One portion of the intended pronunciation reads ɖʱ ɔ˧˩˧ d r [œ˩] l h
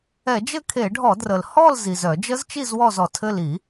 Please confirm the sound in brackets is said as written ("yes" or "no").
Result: no